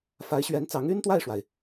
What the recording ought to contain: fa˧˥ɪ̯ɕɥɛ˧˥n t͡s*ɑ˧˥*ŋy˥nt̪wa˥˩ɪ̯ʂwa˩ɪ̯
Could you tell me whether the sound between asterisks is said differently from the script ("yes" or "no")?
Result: no